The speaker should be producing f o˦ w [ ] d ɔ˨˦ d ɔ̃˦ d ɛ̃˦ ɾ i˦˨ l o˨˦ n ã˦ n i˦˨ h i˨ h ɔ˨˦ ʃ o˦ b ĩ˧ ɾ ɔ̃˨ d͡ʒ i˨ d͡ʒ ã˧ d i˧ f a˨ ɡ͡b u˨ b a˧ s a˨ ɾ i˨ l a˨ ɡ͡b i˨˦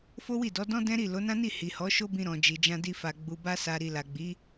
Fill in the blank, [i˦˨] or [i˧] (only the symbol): i˦˨